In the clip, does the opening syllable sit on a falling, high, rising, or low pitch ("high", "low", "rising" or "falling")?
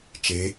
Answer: rising